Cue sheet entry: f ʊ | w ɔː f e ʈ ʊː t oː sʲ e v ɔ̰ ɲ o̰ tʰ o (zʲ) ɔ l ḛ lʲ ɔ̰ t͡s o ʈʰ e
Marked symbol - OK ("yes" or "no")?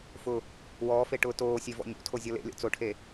yes